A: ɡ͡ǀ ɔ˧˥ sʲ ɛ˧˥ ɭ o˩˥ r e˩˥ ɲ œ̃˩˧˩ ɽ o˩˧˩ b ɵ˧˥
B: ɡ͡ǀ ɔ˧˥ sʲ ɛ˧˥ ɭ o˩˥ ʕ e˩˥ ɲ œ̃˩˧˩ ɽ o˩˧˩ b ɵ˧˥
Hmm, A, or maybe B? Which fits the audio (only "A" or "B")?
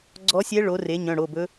A